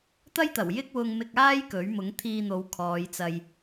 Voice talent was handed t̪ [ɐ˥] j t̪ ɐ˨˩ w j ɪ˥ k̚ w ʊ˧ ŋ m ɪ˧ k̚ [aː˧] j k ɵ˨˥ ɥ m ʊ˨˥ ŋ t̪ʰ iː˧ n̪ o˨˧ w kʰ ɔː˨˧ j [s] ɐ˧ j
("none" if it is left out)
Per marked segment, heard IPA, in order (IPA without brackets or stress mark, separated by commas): ɐ˥, aː˥, t͡s